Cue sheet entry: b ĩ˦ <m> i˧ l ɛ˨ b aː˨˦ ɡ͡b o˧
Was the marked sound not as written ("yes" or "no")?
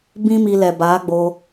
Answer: no